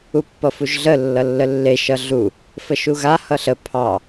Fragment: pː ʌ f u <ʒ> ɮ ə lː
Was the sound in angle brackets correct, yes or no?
yes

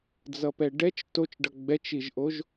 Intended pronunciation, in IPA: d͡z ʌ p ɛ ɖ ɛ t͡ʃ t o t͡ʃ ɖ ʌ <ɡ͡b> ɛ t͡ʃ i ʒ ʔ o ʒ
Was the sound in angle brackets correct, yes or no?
yes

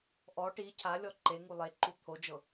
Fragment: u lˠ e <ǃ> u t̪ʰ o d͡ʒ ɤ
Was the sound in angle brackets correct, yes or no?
yes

